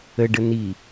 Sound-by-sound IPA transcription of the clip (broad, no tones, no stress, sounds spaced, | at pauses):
ə ɖ ə n i